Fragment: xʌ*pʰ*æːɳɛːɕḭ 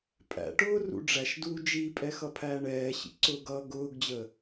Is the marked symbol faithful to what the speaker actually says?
yes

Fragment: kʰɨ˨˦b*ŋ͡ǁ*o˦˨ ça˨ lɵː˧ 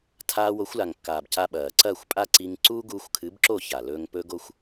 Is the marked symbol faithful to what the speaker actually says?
no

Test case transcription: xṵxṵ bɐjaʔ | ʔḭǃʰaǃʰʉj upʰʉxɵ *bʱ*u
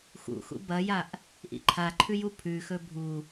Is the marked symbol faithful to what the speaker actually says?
yes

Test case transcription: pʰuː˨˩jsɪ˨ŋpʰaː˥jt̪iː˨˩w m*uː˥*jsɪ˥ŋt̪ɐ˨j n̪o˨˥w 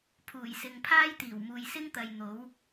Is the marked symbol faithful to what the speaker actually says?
no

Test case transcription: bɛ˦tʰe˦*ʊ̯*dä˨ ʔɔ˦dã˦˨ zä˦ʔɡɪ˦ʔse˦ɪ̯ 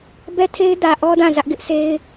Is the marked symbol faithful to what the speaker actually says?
no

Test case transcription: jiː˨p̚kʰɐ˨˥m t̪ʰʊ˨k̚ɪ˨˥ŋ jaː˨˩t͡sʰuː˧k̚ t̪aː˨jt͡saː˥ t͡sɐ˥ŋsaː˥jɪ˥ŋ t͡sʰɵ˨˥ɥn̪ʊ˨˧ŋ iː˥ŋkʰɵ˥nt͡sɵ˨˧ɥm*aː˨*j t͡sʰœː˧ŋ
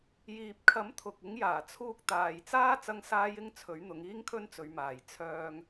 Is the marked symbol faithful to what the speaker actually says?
yes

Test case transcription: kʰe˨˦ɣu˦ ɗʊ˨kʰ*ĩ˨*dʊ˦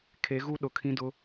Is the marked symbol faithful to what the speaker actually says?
no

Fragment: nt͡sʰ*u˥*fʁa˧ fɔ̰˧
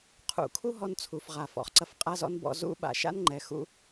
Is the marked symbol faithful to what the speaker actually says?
no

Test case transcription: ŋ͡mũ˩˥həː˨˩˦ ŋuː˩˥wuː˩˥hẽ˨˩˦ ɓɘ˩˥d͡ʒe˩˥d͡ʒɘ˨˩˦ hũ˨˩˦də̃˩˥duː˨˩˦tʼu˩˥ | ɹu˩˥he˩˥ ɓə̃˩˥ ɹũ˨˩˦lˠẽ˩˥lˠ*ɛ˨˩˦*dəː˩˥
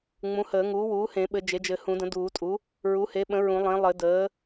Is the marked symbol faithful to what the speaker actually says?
no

